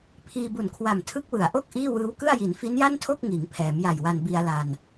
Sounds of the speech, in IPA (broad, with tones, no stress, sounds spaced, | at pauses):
pʰ iː˧ b u˨˩ n kʰ w a˨˩ m tʰ ɯ˦˥ k̚ w ɯ˩˦ a̯ ʔ o˥˩ k̚ ʔ iː˥˩ w ɯː˦˥ w k ɯ˥˩ a̯ j i˩˦ n f i˦˥ n j a˥˩ n tʰ o˥˩ k̚ ŋ iː˩˦ ŋ pʰ ɛː˩˦ m j a˨˩ j w a˧ n b i˧ a̯ l a˧ n